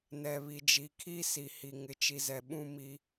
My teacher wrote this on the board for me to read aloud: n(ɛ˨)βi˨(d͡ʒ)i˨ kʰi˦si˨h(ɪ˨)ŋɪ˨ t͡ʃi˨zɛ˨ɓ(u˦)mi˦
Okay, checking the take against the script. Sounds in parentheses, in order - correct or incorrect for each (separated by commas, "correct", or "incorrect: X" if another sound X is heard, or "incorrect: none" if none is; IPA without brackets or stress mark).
correct, correct, incorrect: i˨, incorrect: ũ˦